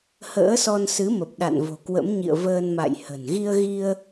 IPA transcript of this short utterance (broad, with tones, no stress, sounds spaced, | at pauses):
h ə̰ː˧˥ s ɔ˧ n s ɨ˨˦ m ə˨˩ p̚ ɗ a̰˧˨ n v o̤˨˩ k w ə̰˧˥ m ɲ ḭ˧˨ ə̯ v əː˧ n m a̰˧˨ j h ə̤˨˩ n ɣ i˧ ə̯ ɣ i˧ ə̯